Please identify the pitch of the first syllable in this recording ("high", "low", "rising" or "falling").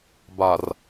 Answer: low